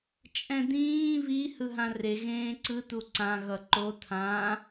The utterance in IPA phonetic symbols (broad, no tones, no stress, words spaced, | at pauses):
t͡ʃʼɛ̃d̪ĩː βi hɯɦãre ɣẽːǀɯ t̪uǀã ɣʌǃo t̪ʰã